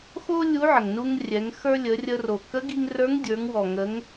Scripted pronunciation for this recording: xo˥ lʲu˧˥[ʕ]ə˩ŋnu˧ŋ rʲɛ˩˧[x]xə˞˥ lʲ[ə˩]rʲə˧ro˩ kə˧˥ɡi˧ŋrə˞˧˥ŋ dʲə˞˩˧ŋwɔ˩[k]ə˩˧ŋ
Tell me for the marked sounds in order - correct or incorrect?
correct, incorrect: ŋ, incorrect: ə˩˧, incorrect: ŋ

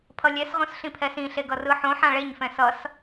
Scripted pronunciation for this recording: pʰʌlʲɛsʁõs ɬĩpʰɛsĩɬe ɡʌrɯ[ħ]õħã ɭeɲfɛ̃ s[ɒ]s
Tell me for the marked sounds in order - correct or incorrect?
correct, incorrect: ʌ

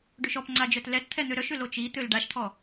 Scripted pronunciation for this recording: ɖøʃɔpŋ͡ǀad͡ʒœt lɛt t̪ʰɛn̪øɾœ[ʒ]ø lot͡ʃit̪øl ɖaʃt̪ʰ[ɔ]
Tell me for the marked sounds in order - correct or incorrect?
incorrect: ʃ, correct

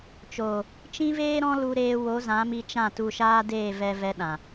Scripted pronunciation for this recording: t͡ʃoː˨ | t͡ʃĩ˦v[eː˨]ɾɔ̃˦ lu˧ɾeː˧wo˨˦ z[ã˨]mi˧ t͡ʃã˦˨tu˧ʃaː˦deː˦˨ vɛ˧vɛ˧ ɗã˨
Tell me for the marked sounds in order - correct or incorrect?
incorrect: eː˦, incorrect: ã˨˦

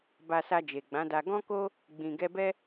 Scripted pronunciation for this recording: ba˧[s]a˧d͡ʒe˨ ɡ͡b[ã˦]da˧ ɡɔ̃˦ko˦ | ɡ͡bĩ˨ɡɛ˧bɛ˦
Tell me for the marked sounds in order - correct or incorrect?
correct, incorrect: ã˨˦

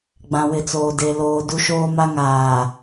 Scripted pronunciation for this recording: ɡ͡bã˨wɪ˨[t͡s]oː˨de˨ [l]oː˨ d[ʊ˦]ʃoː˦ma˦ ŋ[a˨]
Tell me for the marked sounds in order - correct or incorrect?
correct, correct, incorrect: u˦, incorrect: aː˨

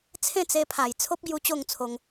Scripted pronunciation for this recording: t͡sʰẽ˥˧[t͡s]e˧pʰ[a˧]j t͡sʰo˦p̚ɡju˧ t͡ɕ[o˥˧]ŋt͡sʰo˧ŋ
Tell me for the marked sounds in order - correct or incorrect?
correct, incorrect: a˨˩, correct

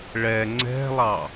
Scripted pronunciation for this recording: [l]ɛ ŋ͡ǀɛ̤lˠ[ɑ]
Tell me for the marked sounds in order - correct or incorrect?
incorrect: ɭ, correct

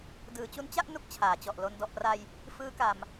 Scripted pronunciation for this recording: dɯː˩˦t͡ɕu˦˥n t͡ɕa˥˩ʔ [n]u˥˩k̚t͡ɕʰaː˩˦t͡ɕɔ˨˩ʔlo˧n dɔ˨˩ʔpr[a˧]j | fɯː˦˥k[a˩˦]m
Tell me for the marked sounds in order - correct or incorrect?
correct, correct, incorrect: a˨˩

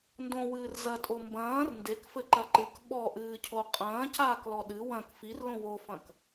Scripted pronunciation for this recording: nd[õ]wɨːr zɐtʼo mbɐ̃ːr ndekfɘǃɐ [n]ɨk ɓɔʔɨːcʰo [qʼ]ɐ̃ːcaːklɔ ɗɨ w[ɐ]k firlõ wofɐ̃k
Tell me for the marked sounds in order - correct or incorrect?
correct, incorrect: ǃ, correct, incorrect: ɐ̃

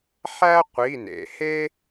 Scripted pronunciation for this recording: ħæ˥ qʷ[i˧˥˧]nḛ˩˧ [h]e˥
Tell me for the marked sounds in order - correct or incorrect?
correct, correct

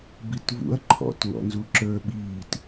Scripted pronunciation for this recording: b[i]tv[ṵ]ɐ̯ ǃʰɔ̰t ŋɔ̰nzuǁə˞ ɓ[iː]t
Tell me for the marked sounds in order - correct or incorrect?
correct, correct, correct

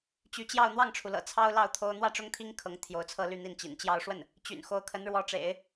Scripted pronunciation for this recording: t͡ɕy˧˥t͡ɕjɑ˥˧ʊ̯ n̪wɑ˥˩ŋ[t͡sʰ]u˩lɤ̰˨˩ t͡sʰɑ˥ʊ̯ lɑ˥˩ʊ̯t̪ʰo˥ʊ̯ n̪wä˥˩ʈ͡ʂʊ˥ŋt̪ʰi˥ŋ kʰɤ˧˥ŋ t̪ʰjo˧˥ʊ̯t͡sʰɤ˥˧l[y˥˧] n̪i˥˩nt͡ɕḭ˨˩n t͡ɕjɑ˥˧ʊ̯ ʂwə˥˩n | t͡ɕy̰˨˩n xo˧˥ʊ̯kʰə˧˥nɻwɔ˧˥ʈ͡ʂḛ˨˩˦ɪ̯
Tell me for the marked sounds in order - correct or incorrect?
incorrect: ʈ͡ʂʰ, correct

